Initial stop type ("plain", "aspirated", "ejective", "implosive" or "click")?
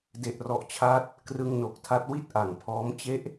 plain